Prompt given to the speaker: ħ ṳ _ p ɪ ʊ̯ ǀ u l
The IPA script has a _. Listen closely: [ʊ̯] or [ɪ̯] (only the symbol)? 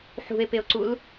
ɪ̯